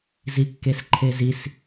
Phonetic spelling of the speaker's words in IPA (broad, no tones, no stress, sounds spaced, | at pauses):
z i kː e s ǃʰ e z i s